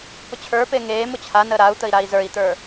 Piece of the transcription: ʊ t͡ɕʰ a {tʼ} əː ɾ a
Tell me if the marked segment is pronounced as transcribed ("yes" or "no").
no